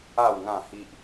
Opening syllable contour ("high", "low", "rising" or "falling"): falling